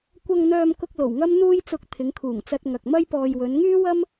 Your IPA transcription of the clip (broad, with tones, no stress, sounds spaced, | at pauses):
kʷ ɐ˨ ŋ n̪ œː˨ m k ʊ˧ k̚ l o˨˩ w ŋ ɐ˥ m n̪ uː˧ j t͡s ʊ˨˥ k̚ t̪ʰ ɪ˨˧ ŋ kʰ uː˨˩ ŋ t͡s ɐ˧ t̚ ŋ ɐ˨ k̚ m ɐ˥ j p ɔː˧ j w ɵ˨˧ n ŋ yː˥ w ɐ˥ m